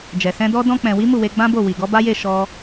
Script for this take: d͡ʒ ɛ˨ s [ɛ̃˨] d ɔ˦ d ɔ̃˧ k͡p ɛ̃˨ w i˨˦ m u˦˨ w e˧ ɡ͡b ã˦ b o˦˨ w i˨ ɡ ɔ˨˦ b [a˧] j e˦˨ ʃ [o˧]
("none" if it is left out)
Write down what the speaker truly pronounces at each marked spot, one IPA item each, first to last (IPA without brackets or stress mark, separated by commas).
ɛ̃˧, a˦, ɔ˧